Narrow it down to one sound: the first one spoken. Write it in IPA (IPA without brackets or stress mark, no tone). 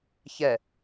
ç